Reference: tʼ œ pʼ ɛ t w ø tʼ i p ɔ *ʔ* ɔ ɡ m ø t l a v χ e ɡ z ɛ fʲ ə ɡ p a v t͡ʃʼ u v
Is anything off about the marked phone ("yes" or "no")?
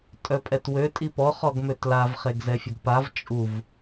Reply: yes